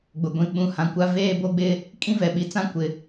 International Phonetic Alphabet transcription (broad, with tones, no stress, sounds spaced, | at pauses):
ɡ͡b ʊ˨ ɡʷ ĩ˨ ɓ ũ˨ h ã˨ kʷ a˦ v eː˦ b o˦ ɡ͡b ɪ˦ | kʼ ĩ˦ v ɛ˨ ɓ i˨ t͡s ã˦ kʷ ɪ˨